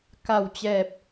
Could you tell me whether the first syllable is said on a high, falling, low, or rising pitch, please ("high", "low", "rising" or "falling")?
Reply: low